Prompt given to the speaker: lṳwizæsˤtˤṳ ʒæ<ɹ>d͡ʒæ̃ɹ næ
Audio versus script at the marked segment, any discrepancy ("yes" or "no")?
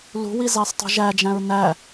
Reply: yes